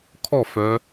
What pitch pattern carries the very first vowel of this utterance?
falling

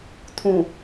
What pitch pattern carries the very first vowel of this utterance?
low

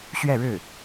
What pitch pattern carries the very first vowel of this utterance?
falling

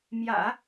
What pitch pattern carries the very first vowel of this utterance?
low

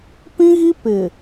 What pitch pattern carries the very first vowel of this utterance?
high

